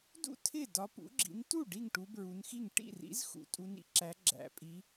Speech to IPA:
d ṵ˥˩ tʰ ɪ˥˩ d ɒ˨˦ p ṵ˨˦ ɡ͡ǁ ḭ˨˦ n t u˥˩ ɖ i˥˩ ŋ ʈ u˨˦ b ɹ u˨˦ n x i˥˩ ŋ ʈ ḭ˥˩ r ḭ˨˦ z x ṵ˨˦ tʼ u˨˦ n ḭ˨˦ ǁ æ˨˦ ɡ͡ǁ æ̰˨˦ pʼ i˨˦

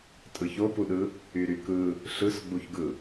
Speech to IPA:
tʼ ɯ ç o p u ɗ ɯ | y ɾ y k ɯ | ɬ ɯ s ɡ͡b u ç ɡ ɯ

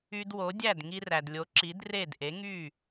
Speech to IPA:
y˧ d w o˩˥ dʲ æ˥˩ d ŋ i˧ r æ˩ d lʲ o˩˥ ǁ i˩˥ d r e˥˩ d ʔ e˩˥ ŋ y˥˩

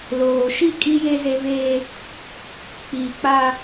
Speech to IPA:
l oː˨ ʃ i˦˨ kʼ i˦ j e˦ z e˦ v eː˦ | k͡p iː˨ k͡p a˦

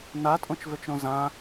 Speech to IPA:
n a tʼ õ t͡ʃ v ø t͡ʃ ɾ õ z ã

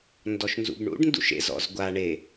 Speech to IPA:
n d ɔ ʃ n z ṵ b ɳ ṵ ɖ n d ṵ ʃ ḛ z ɔ̰ z ɡʷ a ɳ e

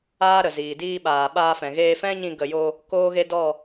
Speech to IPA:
aː˦ ɾ ə˨ z iː˨ d iː˧ ɓ aː˨ ɓ aː˧ f ɛ̃˨ ɣ eː˧ f ɛ̃˦ ɲ ĩ˧ ɡ ə˨ j o˧ | k oː˦ ɣ e˦ d ɔ˦˨

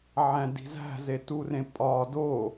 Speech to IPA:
ʕ æ̃ d i̤ z æ̤ z e t u r ẽ pʼ ɒ d o

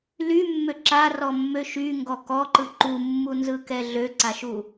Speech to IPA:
l y mː ø ǁ a r ɔ mː ø ʃ y ŋ ɡ ɔ k ɔ ǃ ɯ ǃ u mː u n z ɯ k ɛ ɮ ø ǀ a ʃ u

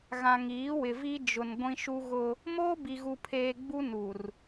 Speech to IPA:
ɣ ã˨ ŋ iː˨˦ w ɪ˨ v i˦ d͡ʒ ʊ˨ n ɡʷ ĩ˦ ʃ u˦ ɣ ʊ˦ | m oː˦ b i˨ ɣ u˨ pʰ eː˨ ɡ͡b u˦ n u˨ r

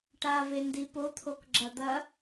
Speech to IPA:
ʈ a v e n d i p o t̪ʰ o k ɡ͡ǁ ɐ d̪ ɐ

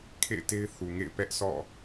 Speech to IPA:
kʰ ḛ˦˨ ɪ̯ t e˦ ɪ̯ θ u˨ ŋ ḛ˦˨ ɪ̯ p ɛ˦ ʔ s ɔ̰˦˨

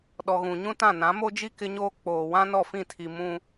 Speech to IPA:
ɗ ɔ˨ ɣ ũ˨ ɲ ũ˦ t ã˦˨ n ã˨˦ m o˦ d͡ʒ i˦ k ɪ˦ ɲ oː˦ k͡p oː˨ w ã˦ n ɔ˦˨ f ĩ˦˨ tʰ i˨ m ũ˦

